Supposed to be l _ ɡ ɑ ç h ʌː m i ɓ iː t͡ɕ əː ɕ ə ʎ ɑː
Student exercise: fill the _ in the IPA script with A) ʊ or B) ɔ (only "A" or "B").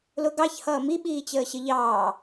A